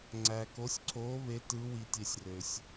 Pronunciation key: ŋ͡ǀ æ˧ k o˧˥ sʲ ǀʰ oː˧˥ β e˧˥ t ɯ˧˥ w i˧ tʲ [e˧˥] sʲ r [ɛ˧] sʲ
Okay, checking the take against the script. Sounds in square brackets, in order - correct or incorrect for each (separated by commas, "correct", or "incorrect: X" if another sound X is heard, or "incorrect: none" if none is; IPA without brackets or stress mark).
incorrect: e˧, incorrect: ø˧